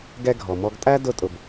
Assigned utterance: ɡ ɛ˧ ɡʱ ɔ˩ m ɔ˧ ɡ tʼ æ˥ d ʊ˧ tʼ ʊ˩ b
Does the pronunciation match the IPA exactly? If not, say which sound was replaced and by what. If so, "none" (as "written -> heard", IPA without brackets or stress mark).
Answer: none